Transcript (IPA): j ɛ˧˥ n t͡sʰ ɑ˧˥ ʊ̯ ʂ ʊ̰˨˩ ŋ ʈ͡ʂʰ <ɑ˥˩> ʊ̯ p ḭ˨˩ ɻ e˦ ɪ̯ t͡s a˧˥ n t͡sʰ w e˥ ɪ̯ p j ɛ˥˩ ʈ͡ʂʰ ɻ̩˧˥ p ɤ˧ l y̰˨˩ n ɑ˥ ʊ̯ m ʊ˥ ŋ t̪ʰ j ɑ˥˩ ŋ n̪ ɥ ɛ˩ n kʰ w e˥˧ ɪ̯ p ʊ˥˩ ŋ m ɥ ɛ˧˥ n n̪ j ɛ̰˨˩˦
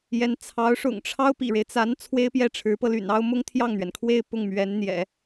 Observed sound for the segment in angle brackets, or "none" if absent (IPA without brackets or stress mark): ɑ˥